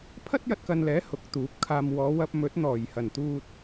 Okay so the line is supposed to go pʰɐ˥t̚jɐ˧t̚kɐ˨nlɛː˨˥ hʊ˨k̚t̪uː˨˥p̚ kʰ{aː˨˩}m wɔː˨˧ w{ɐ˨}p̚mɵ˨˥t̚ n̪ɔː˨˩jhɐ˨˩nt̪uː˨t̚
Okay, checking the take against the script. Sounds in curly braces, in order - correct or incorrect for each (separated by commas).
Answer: incorrect, incorrect